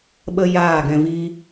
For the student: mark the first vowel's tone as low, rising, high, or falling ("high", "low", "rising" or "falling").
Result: high